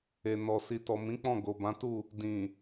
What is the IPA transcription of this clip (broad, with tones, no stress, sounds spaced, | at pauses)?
e˨ n ɔ˨ s i˨ t ɔ˨ m ĩ˨˦ k͡p ɔ̃˦˨ ɡ o˨ b ã˨˦ t u˦˨ | d ĩ˨